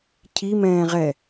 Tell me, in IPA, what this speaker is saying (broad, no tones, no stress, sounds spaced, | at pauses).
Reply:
cʰ i m ɛ̃ː ʁ ɛ